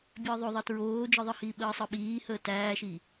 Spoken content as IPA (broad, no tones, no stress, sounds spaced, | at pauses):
bʲ əː ðˤ o ðˤ ʌ t ɹ oː d͡ʒ ɯ ðˤ ɯ h iː ɓ əː sˤ ɯ ɓ iː h əː t æː ʃ i